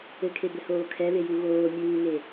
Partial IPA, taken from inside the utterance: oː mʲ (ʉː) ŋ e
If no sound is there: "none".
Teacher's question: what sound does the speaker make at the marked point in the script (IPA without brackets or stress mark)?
uː